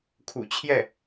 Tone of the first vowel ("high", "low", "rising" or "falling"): low